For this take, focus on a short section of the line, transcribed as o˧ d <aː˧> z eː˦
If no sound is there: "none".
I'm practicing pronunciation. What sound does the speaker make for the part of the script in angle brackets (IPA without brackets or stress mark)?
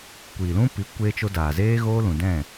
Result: aː˨